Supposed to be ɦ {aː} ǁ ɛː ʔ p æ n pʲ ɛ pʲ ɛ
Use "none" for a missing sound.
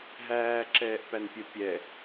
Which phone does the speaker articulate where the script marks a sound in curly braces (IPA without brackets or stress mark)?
æː